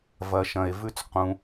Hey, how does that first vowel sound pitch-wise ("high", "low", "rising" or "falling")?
low